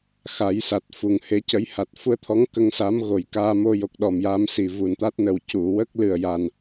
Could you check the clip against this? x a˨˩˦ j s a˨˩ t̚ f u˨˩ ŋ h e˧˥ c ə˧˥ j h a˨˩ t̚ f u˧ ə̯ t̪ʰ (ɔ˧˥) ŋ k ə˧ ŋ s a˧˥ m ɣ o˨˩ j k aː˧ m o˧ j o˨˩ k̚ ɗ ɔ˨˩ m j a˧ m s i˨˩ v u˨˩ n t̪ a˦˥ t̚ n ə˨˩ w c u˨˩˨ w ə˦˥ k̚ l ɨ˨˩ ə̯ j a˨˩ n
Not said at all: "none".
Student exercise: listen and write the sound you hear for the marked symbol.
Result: ɔ˧˥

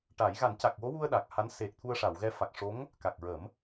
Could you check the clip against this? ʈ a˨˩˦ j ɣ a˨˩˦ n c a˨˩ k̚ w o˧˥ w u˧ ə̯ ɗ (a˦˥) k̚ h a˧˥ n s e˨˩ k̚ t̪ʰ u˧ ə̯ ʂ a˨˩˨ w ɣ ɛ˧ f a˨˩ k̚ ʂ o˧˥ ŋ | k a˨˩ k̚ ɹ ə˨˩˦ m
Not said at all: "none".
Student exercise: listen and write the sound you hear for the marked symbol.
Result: a˨˩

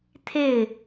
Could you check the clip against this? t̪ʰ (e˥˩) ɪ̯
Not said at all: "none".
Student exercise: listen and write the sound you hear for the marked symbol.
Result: e˥˩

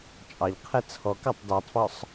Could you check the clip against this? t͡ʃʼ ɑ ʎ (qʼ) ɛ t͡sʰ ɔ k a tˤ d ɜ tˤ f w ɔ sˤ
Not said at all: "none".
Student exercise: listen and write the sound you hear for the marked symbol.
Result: qʰ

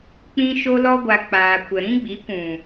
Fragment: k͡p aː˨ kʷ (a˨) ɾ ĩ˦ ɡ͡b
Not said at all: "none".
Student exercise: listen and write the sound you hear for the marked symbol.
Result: ə˨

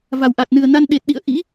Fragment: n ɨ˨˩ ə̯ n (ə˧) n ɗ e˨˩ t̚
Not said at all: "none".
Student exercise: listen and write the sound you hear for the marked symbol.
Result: a˧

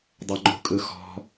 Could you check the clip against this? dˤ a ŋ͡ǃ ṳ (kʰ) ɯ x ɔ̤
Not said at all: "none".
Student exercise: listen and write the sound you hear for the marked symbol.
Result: kʼ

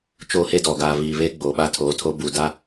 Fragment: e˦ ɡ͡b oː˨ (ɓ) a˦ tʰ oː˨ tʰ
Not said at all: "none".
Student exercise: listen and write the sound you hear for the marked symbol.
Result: ɓ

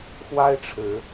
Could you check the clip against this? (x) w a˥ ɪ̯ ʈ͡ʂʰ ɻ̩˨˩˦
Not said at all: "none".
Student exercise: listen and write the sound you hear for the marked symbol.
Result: x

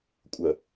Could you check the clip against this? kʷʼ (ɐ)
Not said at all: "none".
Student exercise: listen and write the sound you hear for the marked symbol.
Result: ɐ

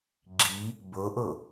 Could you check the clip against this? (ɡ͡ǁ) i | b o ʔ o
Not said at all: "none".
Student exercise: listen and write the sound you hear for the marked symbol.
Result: ɡ͡ǁ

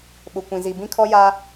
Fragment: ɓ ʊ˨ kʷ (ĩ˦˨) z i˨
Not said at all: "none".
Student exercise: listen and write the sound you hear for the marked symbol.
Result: ĩ˨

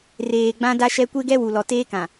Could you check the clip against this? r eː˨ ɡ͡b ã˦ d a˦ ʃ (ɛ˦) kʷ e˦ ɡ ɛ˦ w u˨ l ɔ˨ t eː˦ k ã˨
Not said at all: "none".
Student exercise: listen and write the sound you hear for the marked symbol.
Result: ɛ˦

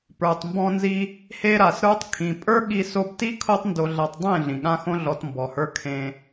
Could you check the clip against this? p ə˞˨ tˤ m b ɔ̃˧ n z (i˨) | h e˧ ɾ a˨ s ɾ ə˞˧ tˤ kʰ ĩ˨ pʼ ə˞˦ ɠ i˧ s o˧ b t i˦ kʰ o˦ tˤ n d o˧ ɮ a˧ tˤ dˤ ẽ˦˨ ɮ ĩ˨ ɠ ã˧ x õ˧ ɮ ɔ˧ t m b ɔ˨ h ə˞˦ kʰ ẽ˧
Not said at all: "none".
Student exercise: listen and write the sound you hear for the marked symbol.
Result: i˧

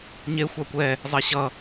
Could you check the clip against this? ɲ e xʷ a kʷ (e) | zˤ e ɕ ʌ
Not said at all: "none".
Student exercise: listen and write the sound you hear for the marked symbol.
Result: ɛ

